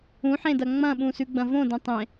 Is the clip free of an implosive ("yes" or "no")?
no